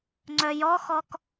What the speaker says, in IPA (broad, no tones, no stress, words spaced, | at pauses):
ŋ͡ǀœjɔxɔk